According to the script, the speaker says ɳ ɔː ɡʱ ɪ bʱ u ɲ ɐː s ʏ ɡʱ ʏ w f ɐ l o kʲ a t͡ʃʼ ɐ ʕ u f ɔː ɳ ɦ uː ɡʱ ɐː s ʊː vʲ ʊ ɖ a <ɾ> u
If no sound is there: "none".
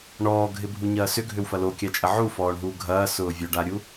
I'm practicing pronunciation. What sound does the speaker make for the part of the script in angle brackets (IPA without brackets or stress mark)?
ɾʲ